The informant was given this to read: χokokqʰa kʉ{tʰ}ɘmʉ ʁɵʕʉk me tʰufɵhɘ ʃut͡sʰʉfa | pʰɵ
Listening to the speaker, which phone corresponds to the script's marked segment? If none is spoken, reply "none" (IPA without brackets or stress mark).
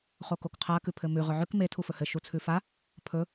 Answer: pʰ